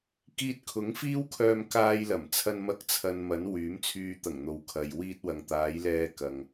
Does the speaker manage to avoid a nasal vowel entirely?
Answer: yes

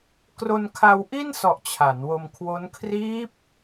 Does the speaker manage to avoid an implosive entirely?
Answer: yes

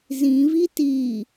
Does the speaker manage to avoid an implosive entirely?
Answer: yes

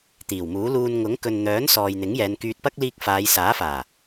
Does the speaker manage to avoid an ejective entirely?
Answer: yes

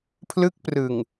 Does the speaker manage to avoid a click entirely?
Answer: yes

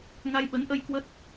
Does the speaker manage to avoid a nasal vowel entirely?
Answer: yes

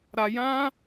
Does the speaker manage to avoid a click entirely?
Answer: yes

